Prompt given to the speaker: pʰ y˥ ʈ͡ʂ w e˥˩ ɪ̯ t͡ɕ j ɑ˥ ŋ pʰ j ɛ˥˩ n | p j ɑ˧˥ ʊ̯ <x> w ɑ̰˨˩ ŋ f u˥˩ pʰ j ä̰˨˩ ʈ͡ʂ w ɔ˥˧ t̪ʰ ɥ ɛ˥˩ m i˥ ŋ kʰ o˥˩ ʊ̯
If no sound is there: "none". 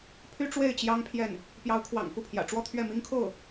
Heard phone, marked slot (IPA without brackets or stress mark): kʰ